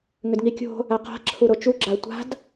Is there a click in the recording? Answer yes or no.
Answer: yes